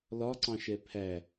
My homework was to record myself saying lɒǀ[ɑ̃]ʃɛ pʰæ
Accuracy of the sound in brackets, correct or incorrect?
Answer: correct